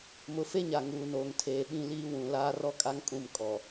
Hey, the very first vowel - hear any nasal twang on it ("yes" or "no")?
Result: no